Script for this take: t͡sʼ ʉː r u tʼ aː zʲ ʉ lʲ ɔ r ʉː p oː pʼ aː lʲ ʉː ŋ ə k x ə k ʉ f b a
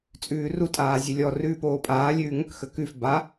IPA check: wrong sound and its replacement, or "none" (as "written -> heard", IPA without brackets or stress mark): none